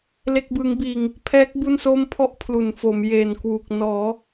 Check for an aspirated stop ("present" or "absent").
present